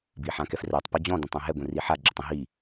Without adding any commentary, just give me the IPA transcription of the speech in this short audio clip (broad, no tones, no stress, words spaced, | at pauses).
biħãkɛfrɛtˤ pʌd͡ʑɔ̃ dɛ̃tˤɛ̃ɦɛ ɡʷɛ̃riħa ɡ͡ǁʊtˤə̃ ɦi